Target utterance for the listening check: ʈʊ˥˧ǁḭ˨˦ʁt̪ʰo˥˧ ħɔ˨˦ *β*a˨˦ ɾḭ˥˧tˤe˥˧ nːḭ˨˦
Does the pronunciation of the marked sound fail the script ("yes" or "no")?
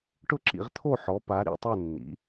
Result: yes